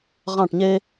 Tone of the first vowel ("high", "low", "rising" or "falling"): falling